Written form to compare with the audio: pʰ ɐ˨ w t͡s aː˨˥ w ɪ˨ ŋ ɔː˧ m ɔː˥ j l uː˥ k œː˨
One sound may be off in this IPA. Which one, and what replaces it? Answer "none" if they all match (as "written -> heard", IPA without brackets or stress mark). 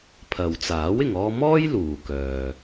uː˥ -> uː˨